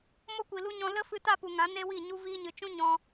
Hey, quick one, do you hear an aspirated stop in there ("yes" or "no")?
no